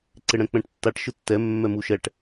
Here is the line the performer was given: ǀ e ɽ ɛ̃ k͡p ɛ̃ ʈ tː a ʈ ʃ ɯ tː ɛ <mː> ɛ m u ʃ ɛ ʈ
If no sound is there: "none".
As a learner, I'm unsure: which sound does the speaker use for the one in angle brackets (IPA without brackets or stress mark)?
mː